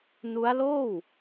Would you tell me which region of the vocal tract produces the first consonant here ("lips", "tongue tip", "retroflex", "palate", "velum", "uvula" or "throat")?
tongue tip